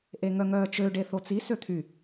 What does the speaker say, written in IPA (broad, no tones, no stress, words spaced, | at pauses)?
ʔeŋœŋœːt͡ʃø ɖeθot͡si søt̪ʰy